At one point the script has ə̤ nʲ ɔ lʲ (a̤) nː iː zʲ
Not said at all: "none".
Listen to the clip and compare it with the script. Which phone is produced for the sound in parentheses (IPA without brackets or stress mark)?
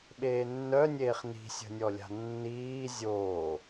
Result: a̤